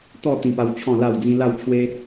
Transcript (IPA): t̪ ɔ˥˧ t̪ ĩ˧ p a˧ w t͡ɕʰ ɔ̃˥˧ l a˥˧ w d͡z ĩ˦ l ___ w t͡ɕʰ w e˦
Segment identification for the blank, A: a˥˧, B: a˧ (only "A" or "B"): A